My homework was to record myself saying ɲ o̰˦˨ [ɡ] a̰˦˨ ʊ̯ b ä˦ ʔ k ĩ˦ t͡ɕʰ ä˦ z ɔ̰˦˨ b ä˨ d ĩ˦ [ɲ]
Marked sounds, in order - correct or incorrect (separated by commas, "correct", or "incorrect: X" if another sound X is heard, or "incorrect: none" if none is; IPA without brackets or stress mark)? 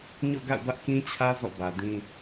correct, incorrect: none